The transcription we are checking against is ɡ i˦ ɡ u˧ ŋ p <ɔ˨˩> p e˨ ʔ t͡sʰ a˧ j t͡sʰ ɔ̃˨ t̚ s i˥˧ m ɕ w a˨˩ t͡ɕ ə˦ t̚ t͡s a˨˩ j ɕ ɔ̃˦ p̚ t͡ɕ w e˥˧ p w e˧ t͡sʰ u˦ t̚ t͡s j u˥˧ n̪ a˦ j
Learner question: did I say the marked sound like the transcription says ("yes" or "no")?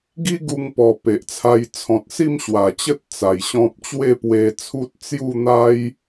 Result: yes